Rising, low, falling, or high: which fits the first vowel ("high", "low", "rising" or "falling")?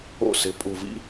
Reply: falling